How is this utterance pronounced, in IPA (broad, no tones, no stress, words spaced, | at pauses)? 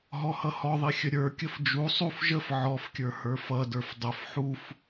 ɦɔhʌhɔðˤi xʲəɾʲə˞kʲəf d͡ʒu sˤuf ʒəf ʕɔfkʲə˞ hə˞fʌdə˞f dˤəf ħuf